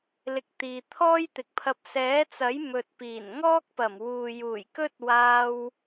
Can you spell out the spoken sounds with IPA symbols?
l ɪ˧ k̚ t̪ iː˨ t̪ʰ ɔː˥ j t̪ ɪ˨ k̚ pʰ ɐ˧ p̚ s ɛː˨˥ t͡s ɐ˨˥ j m ɵ˨ t̚ p iː˨˩ n ŋ ɔː˥ k̚ p ɐ˨˩ m w uː˨ j uː˨˩ j k ɵ˥ t̚ w aː˧ w

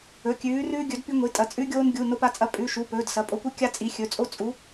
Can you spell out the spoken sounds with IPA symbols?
ɵ˩˧˩ kʲ ʉː˨˦ r ʉː˦ ɡʲ ɵ˨˦ d p i˦ ŋʷ i˩˧˩ tʼ ɐ˨˦ t͡sʼ ʉ˦ ɡʲ oː˦ n ɡʲ u˩˧˩ n o˦ p a˦ t͡sʼ ɐ˦ pʼ ʉ˩˧˩ ʃ u˩˧˩ p ɵː˩˧˩ d s ɐ˩˧˩ pʼ o˨˦ kʷ ɨ˦ kʲ a˦ t͡sʼ i˨˦ xʲ ɵ˩˧˩ t͡sʼ o˦ t͡sʼ u˨˦

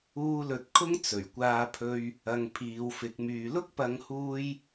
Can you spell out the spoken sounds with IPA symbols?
uː˥ l ɵ˧ t̚ kʰ ʊ˥ ŋ t͡s ɵ˨˩ ɥ kʷ aː˧ pʰ ɵ˧ ɥ | ɐ˧ ŋ pʰ iː˨˧ w f ɪ˨˥ k̚ m yː˧ l ʊ˥ k̚ p ɐ˨˧ ŋ h uː˧ j

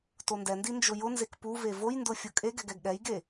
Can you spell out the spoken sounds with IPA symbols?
t o n d ɛ n d i n d͡ʒ ʊ j ʊ n z e k p u v e v o j n d ʊ fʲ ʊ kʼ e ɡ ɛ ɡ ɛ ɡ ɠ ɛ j ɡ e

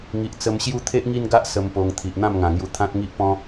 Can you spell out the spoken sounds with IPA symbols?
ŋ i˨ ʔ t͡s ə˧ m ɕ j u˦ t̪ʰ e˦ ʔ ŋ i˦ n ɡ a˦ ʔ s ə˧ m p o˧ ŋ t̪ʰ i˨ ʔ n̪ ã˥˧ m ŋ ã˨˩ ŋ j u˧ t̪ʰ ã˦ t̚ ŋ i˦ ʔ p ɔ̃˦

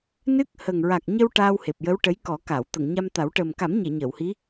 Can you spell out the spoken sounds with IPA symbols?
n ɨ˦˥ k̚ h ə˨˩ ŋ ɹ a˨˩ k̚ ɲ ə˧ w ʈ aː˧ w h e˨˩ p̚ j ə˧˥ w ʈ ə˧˥ j k ɔ˨˩˦ k a˨˩˨ w t̪ ə˨˩˨ ŋ ɲ a˧ m t̪ a˨˩˦ w ʈ əː˨˩ m k a˨˩˦ m ɲ e˨˩˨ ɲ əː˨˩˨ w h i˧˥

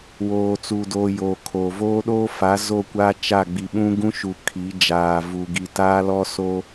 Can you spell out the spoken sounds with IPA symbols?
w oː˨ t͡s u˨ d oː˨ j oː˨ kʰ oː˨ v oː˦ ɗ oː˦ f a˨˦ z o˦˨ kʷ a˦ t͡ʃ a˦˨ ɡ͡b i˨ ɓ ũ˦ ɡ ũ˦ ʃ u˨ kʰ i˨˦ d͡ʒ aː˨ v u˨ ɡ i˨ t aː˦ l ɔ˦ s o˦

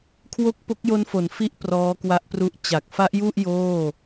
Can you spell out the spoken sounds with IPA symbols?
kʰ w o˥˩ k̚ p o˦˥ k̚ j o˦˥ n f o˩˦ n f i˦˥ ʔ p r ɔː˦˥ k w a˦˥ ʔ p r u˦˥ ʔ t͡ɕ a˨˩ k̚ f a˦˥ ʔ j u˥˩ ʔ j oː˥˩

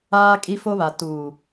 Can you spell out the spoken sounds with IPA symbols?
aː˦ kʼ i˦ f o˦ β a˨ t uː˨

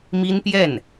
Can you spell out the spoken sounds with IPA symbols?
m i˥ n p j ɛ˥˩ n

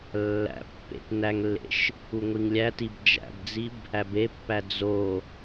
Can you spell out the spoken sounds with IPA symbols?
lː æ̰ pː ḛ t n æ ŋ lː ḛ ʃ | u ŋʷ i ŋ lʲ æ t i b d͡ʒ æ̰ b d͡z i b | æ b e pː æ d͡z o

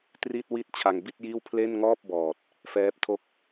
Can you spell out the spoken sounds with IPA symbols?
t r i˥˩ t̚ w i˦˥ t̚ t͡ɕʰ a˧ ŋ b i˥˩ t̚ j iː˥˩ w pʰ l e˥˩ n ŋ ɔː˥˩ p̚ b ɔː˨˩ t̚ | f ɛː˦˥ p̚ tʰ o˥˩ k̚

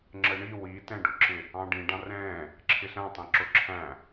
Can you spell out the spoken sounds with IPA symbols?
ŋ͡ǁ ə ɳ i w i t ɛ̃ ɖ ʊ ǁ ɪ | ɑ̃ ɖ ĩ ɖ ɑ̃ r ɛ̃ | ǁʰ ɪ ɬ æ̃ tˤ ɛ̃ ǁ ʊ ǁʰ æ̃

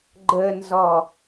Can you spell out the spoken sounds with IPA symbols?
ɡ͡ǃ ə n z ɔ

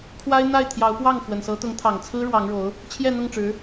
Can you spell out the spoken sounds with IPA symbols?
kʰ w a˥ ɪ̯ n̪ a˥˩ ɪ̯ t̪ʰ j ɑ˧˥ ʊ̯ p w ɑ˥˩ ŋ x w ə˨˩ n s ɤ˧˥ t̪ ʊ˧˥ ŋ t̪ʰ ɑ˨˩ ŋ t͡sʰ ɹ̩˥ ɻ w ɑ˧˥ ŋ ɻ o˧˥ ʊ̯ | t͡ɕʰ j ɛ˥˧ n̪ ʊ˥˩ ŋ ʈ͡ʂ ɻ̩˧˥

